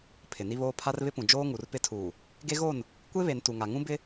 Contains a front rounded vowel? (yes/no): no